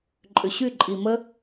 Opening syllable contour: low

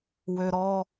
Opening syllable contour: low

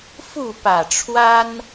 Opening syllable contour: falling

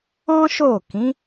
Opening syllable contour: high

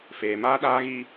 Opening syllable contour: low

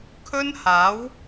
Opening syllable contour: high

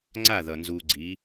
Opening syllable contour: falling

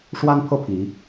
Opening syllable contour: high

